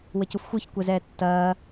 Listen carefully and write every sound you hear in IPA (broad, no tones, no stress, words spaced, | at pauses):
wɘcufxʷɨç kʷɛzɛːtːɐː